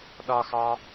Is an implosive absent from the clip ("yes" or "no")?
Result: no